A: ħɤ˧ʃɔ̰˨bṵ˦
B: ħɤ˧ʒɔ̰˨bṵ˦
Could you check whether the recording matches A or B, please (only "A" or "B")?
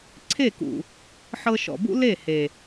A